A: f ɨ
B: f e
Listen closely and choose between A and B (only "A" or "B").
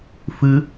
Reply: A